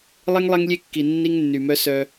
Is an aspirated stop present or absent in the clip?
absent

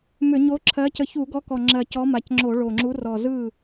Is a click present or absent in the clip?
present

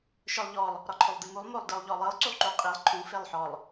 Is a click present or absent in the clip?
present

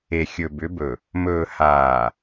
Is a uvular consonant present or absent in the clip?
absent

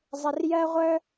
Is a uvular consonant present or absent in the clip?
present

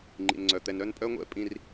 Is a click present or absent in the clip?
present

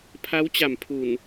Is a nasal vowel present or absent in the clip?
absent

